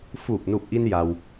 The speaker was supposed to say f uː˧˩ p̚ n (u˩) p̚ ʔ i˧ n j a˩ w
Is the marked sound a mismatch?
yes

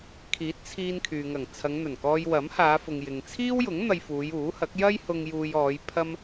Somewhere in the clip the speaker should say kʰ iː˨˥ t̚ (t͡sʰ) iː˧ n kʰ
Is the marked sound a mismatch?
no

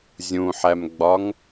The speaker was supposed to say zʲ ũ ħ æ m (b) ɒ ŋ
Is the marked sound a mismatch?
yes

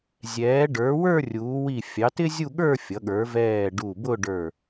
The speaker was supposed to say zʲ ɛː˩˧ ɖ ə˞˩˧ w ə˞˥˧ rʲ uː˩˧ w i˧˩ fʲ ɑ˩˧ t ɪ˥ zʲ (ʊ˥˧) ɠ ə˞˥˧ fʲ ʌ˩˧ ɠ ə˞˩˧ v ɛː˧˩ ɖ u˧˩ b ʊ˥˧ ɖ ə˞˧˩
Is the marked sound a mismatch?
yes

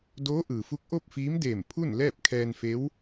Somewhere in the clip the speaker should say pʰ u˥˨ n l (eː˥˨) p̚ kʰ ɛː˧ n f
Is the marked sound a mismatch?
yes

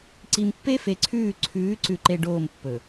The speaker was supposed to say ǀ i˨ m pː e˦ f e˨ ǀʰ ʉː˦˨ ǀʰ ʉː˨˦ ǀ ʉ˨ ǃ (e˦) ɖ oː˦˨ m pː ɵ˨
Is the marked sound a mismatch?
yes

